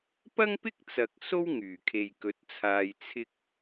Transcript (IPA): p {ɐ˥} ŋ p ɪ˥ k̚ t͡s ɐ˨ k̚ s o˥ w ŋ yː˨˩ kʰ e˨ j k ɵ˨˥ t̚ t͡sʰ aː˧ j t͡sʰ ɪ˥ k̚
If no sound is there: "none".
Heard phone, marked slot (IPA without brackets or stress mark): ɐ˥